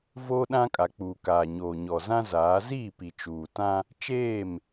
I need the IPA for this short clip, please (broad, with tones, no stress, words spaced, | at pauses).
voː˦ɗã˦kʼa˨k͡puː˨ kaː˨ɲoː˨ɲɔ˨ zã˦zaː˨˦ ziː˦˨pi˨ t͡ʃuː˨tã˦ | t͡ʃeː˦˨m